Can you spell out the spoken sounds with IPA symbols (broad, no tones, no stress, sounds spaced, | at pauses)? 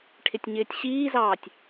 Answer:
ʈʰ ɪ tʲ ɲ ɪː tʲ ɕ iː z ɑː tʲ